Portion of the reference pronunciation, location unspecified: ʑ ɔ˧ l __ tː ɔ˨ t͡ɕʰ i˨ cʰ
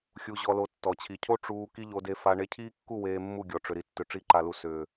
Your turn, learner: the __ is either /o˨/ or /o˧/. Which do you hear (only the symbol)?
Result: o˧